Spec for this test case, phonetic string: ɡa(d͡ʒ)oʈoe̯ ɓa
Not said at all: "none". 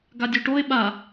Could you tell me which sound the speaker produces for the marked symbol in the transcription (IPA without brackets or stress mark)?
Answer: dʲ